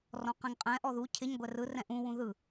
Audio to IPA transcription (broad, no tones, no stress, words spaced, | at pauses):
rɔ̃qɛ̃ŋqʼɛ̃ʔɔ ðu cʰɪɲ ɡʷɛrɯrɛ̃ ʔũwũ ðɯ